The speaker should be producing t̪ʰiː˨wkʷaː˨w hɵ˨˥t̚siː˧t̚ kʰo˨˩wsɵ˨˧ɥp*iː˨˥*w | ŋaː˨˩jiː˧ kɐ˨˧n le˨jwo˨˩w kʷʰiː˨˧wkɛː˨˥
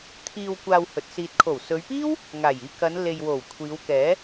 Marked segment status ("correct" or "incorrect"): incorrect